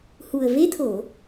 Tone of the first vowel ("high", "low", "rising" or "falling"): low